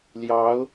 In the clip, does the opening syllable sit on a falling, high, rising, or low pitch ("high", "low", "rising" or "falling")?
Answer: rising